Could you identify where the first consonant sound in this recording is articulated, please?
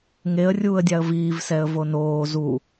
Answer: velar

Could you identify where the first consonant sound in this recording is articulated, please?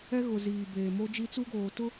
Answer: velar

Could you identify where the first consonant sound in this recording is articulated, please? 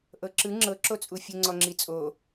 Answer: glottal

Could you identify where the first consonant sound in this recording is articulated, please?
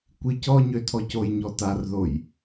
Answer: velar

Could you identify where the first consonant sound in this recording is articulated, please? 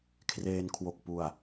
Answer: velar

